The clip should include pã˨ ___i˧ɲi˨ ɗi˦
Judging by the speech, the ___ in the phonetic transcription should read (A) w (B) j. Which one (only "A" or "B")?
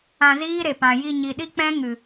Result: B